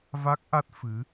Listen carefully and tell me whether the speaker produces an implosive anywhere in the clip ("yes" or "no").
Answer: no